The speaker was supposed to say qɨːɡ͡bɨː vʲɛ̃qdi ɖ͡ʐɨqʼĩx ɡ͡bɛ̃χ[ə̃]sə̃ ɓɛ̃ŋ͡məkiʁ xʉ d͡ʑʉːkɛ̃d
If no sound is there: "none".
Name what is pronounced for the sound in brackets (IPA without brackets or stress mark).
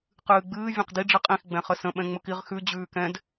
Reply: ə